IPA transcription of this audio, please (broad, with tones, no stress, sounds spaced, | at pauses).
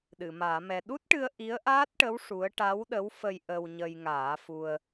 ɗ ɨ˨˩˨ m aː˨˩˦ m ɛ˧ ɗ u˦˥ t̚ ʈ ɨ˧ ə̯ ʔ i˧˥ ə̯ ʔ aː˦˥ t̚ ʈ ə˧˥ w ʂ u˧˥ ə̯ ʈ a˧˥ w ɗ ə˧˥ w f ə˧ j ʔ ə˧ w ɲ ə˧ j ŋ aː˨˩˦ f u˧ ə̯